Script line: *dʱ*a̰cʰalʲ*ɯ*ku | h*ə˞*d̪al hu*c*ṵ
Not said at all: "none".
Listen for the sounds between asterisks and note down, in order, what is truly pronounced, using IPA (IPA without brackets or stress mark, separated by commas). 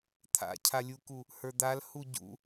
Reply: t̪ʰ, u, ə˞, ɟ